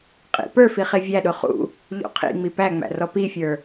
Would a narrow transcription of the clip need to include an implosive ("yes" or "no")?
yes